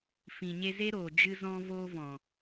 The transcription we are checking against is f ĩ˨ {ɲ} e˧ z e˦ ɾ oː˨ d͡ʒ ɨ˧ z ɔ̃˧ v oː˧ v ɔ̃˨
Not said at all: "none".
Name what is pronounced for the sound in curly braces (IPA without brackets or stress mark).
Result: ɲ